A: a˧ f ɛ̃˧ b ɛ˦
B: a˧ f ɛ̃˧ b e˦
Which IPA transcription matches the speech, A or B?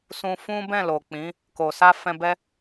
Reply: A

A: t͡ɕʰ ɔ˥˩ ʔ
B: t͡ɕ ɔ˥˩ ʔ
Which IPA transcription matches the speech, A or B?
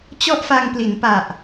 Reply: B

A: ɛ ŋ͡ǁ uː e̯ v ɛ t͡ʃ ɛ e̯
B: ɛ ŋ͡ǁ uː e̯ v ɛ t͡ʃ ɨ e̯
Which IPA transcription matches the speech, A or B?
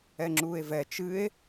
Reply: B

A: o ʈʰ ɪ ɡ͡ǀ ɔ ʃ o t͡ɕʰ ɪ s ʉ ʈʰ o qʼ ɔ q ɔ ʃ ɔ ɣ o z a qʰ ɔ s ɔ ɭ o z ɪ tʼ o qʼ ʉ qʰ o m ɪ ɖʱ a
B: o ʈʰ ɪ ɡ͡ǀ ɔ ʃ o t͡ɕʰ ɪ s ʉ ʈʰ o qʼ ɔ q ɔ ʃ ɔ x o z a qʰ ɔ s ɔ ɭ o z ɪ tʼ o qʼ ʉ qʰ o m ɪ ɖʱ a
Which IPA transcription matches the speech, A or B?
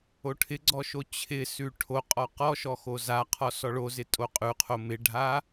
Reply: B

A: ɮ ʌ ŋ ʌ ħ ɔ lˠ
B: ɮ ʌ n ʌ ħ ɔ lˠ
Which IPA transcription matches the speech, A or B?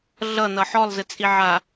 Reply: B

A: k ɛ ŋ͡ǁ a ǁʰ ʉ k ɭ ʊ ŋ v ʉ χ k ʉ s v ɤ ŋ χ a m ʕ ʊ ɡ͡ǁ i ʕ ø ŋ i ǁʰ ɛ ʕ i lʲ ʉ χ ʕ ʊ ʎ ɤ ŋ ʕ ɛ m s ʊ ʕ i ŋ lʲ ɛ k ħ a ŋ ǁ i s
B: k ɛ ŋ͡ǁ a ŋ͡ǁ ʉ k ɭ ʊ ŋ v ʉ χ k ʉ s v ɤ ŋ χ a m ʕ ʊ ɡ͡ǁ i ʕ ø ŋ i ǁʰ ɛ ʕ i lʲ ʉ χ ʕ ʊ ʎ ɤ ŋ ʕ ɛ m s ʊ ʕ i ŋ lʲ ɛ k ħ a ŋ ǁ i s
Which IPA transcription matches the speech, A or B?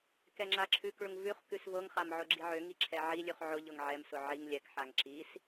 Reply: A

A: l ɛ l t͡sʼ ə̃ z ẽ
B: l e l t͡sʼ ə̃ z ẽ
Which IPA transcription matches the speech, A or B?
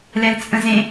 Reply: A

